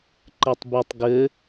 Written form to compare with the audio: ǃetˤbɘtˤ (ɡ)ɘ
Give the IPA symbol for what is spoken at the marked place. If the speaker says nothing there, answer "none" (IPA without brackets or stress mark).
ɡ